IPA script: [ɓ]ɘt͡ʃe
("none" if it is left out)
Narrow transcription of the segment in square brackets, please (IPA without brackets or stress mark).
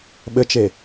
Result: ɓ